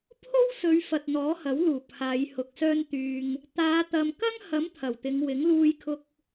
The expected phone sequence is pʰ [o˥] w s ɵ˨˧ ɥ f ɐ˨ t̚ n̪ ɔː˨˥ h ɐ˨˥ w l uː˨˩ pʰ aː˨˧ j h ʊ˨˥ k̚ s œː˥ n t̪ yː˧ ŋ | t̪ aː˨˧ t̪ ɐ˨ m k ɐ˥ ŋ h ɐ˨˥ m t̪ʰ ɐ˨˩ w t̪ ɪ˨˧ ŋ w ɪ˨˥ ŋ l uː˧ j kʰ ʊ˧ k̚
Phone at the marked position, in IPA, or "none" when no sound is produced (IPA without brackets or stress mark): o˥